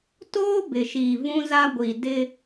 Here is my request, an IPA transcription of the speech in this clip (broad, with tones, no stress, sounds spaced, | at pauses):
t oː˦ b ɪ˨ ʃ iː˨ v ũ˦ z a˦ ɡʷ i˨ d ɪ˦